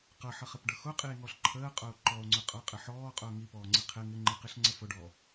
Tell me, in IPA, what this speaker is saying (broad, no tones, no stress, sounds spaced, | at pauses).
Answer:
q ʌ ħ ʌ χ ɪ p ɖ ʌ x ʊ qʼ i e̯ ŋ ɔ ɬ ǃʰ əː qʼ ʊː ǃ ɔ o̯ ŋ͡ǀ ʊ qʼ ʌ qʼ ɪ ħ ɔː qʼ ʊː ŋ i p ɔː ŋ͡ǀ i qʰ ɪ ŋ ɪ ŋ͡ǃ i q i ɬ ŋ͡ǀ ə f ʊ ɖ ɔ